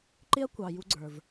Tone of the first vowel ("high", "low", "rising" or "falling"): high